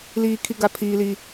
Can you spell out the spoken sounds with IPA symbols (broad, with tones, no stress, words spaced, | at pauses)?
liː˦kʰi˦ɡa˦ pʰiː˦li˦